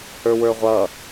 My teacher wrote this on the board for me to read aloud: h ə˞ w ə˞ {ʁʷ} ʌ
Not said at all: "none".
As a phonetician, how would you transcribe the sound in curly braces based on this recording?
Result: ʁʷ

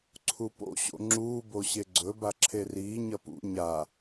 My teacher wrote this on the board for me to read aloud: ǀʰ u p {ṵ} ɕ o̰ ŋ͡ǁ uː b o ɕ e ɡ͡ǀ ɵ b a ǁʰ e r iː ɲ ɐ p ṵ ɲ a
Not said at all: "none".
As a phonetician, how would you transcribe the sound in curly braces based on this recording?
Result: o̰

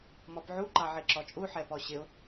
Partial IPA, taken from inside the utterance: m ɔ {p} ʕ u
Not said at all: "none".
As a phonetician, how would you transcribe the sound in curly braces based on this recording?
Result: p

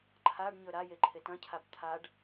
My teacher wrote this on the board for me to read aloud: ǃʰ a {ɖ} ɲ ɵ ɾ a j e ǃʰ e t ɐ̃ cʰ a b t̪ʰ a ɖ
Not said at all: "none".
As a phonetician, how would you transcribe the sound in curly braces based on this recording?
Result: ɖ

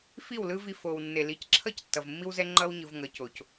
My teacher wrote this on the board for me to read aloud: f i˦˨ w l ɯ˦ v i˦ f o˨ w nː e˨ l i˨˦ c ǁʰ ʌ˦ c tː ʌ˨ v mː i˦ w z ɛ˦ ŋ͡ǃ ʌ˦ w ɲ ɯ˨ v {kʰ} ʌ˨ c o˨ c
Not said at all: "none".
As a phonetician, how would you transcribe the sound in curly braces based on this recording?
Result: ŋ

